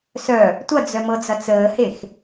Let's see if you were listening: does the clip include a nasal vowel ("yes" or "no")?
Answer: no